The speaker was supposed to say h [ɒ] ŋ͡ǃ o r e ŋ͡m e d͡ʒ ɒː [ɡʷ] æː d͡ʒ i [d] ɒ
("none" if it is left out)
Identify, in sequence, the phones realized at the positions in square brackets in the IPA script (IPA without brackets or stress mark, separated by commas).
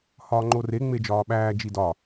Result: ɒː, ɓ, d